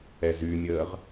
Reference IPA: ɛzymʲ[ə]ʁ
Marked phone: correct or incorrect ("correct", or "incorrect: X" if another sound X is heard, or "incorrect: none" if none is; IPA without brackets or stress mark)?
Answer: incorrect: əː